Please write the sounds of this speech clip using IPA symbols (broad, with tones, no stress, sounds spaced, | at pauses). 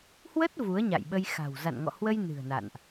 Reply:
h w ə˦˥ t̚ v u˨˦ ə̯ ɲ a̰˧˨ j ɓ ə˧ j x a̤˨˩ w z a̰˧˨ n ŋ ɔ̰˧˨ h w ə˧ j n ɨ̤˨˩ ə̯ n a̰˧˨ n ʔ